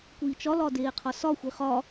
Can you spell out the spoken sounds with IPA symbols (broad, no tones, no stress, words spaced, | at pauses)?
kʷiːt͡ʃɒlɒ deːqʰɒsɒxʷi χɒ